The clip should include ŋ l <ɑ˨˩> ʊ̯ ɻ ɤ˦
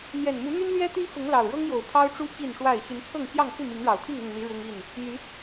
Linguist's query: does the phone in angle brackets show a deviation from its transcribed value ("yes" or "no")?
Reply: no